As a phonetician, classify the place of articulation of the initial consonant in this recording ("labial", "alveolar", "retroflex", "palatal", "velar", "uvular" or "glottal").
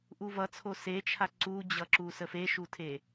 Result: glottal